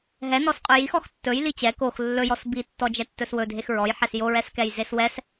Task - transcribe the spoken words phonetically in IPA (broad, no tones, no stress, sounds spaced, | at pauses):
ɦ ɛ n ɔ s qʼ ɵ j i x ɔ x tː ɵ j l i t͡ɕ ɛ k o x lː ɵ j ɔ s b i tː ɔ d͡ʒ ɛ tː ɵ s w ɵ dʱ e x ɹ ɔ j ħ ɛ s j o ɹ ɛ s k ɛ j z e s w ɛ s